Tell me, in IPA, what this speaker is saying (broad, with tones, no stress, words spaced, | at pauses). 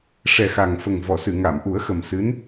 ʂɛ˨˩xa˨˩ŋfə˨˩ŋ vɔ˨˩˨sɨ˨˩˨ŋa˨˩˨m ʔu˨˩˦ə̯ xə˨˩msɨ˧˥n